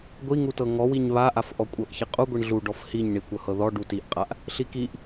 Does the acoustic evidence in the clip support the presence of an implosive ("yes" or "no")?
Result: no